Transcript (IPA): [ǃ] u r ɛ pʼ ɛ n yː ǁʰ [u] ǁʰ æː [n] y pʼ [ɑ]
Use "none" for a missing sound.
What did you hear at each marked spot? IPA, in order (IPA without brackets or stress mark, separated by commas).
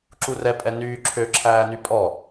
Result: ǁ, ø, n, ɔ